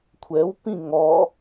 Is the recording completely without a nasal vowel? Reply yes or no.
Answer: no